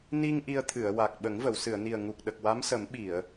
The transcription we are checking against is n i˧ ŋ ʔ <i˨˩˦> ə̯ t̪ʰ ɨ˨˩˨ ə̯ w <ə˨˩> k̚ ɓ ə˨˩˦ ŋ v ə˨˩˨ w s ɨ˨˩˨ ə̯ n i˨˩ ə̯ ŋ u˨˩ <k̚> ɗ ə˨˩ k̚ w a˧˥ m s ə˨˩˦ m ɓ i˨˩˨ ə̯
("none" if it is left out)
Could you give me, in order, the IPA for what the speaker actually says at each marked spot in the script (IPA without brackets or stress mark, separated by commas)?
i˧, a˨˩, k̚